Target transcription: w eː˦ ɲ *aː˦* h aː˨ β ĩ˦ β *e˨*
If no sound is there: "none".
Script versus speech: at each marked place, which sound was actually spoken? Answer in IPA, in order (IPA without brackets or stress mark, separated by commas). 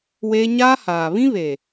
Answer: aː˦, e˨